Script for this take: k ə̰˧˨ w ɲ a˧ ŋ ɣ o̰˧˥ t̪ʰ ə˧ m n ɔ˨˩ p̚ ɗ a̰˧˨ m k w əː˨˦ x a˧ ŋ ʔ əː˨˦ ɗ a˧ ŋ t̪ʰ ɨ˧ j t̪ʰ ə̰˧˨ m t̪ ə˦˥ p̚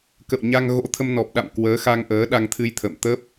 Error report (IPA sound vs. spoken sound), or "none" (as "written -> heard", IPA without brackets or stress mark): none